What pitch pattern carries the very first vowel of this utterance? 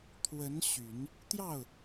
rising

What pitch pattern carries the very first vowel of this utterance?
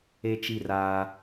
high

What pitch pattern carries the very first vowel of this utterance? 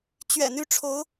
low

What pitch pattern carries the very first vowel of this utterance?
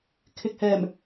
low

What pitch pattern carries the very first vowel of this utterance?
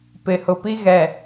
low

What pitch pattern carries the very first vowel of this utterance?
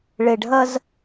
low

